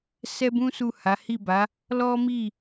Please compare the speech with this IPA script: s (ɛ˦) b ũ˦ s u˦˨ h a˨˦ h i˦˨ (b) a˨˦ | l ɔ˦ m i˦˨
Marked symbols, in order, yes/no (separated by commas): yes, yes